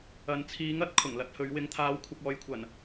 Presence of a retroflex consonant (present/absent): absent